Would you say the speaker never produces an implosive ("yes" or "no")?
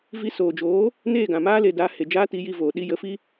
no